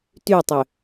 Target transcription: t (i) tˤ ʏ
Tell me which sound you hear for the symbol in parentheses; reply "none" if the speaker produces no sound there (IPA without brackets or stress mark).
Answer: y